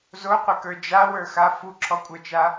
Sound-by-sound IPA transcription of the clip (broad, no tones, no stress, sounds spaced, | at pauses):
z o qʷ ɪ k ə˞ d͡ʒ a w ə˞ x a f u ǁʰ ɔ kʷʼ ə˞ t͡ʃ a